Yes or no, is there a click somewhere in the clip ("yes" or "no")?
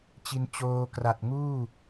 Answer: no